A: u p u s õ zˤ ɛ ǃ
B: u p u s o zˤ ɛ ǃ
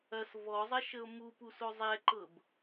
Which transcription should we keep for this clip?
B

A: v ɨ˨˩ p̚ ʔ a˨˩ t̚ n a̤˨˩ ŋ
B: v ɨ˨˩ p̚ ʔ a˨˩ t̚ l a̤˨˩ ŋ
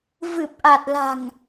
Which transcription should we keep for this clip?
B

